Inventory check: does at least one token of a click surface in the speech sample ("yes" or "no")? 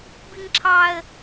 yes